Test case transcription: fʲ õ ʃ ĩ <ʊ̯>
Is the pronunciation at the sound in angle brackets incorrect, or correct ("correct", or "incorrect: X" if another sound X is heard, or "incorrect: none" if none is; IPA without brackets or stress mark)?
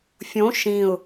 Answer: correct